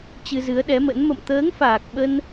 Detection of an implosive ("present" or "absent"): present